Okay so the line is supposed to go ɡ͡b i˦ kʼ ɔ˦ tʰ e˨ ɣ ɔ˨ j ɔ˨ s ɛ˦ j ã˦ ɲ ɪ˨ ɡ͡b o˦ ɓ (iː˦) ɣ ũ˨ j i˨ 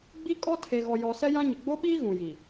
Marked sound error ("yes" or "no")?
no